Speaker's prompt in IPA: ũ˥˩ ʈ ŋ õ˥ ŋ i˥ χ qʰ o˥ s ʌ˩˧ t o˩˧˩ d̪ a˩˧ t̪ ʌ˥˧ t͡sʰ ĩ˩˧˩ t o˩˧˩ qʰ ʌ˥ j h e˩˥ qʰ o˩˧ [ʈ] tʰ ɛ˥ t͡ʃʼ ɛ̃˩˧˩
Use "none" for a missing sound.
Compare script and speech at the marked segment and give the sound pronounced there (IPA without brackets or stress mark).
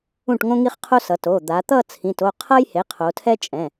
none